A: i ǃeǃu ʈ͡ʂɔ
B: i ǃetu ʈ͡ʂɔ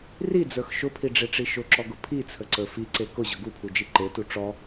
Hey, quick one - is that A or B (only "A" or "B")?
B